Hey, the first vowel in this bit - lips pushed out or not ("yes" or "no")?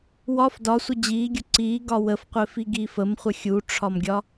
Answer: yes